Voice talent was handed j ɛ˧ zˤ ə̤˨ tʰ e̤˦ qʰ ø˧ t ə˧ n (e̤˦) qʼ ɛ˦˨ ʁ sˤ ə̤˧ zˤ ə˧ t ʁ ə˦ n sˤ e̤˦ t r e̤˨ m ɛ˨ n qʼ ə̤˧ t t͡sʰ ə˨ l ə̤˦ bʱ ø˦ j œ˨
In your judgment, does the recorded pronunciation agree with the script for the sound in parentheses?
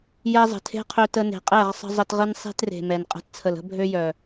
no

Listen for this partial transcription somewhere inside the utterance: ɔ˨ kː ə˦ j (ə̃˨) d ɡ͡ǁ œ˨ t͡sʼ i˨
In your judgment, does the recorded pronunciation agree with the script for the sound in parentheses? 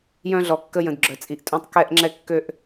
yes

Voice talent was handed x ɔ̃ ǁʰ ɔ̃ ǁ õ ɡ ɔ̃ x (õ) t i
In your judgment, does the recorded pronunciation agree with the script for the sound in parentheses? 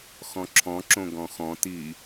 no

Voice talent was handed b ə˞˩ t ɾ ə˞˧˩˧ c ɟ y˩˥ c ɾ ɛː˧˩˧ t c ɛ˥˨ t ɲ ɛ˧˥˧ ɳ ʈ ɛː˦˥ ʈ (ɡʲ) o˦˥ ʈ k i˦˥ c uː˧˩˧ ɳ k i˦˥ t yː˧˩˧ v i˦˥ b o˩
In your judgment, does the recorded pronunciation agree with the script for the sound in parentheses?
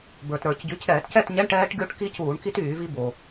yes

